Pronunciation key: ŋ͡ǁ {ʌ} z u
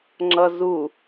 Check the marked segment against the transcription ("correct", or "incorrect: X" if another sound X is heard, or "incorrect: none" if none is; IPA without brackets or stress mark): correct